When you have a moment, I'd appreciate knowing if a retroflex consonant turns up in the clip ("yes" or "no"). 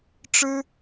yes